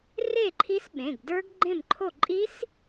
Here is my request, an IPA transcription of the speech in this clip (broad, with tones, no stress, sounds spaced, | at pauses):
r e˥˨ ǃʰ i˦˥ s ɓ ẽ˩˧˩ ɡ d ə˞˦˥ ɡ ɡ͡ǃ ẽ˥˨ m ǃʰ o˥˨ ǃʼ i˦˥ s